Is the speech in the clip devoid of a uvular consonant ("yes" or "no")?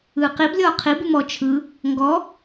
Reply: no